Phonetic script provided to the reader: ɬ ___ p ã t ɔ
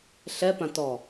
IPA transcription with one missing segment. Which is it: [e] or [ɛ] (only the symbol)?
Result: ɛ